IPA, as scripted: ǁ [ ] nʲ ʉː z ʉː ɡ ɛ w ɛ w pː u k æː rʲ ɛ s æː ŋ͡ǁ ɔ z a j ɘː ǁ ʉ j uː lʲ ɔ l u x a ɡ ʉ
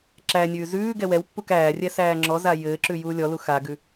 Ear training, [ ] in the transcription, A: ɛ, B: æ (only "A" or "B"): B